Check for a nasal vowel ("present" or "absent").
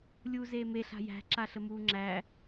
absent